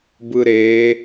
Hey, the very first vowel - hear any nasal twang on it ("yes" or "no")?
no